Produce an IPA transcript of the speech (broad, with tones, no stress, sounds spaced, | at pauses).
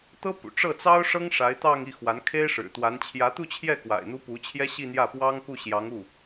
t̪ ɤ˥ p ṵ˨˩ ʈ͡ʂ ɤ˥˩ t͡s ɑ˥ ʊ̯ ʂ ɤ˥ ŋ ʂ a˧˥ ɪ̯ t̪ ɑ˥˧ ŋ i˥˩ x w a˧˥ n kʰ e˥ ɪ̯ ʂ ɻ̩˨˩ t̪ w a˧˥ n t͡ɕʰ j ä˧˥ t̪ u˥˧ t͡ɕʰ j ɛ˥˩ k w a̰˨˩ ɪ̯ n̪ u˧˥ p u˧˥ t͡ɕʰ j ɛ˥ ɕ i˥˧ n̪ j ä˥˩ p w ɑ˥ ŋ k u˥˩ ɕ j ɑ˧˥ ŋ u˥˩